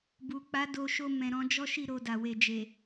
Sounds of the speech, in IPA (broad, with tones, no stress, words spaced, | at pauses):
bu˨k͡pa˨˦do˧ʃo˧ mɛ̃˨ɾɔ̃˧ d͡ʒɔ˦ʃi˦˨ ɾo˧da˨ we˨d͡ʒe˨